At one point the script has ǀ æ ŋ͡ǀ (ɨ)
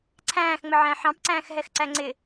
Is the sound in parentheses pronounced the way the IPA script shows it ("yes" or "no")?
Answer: no